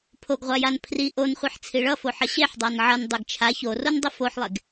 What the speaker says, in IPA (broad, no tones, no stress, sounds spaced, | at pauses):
pʰ o ɡ ʁʷ a j a n pʰ r i ʔ o n χʷ i ħ t͡sʰ i ɭ ʌ f o ħ ʌ ɕ e ħ dˤ a n ʕ ʌ n dˤ e ɡ t͡ʃʰ a ç o r o n dˤ i f o ħ lˠ e ɡ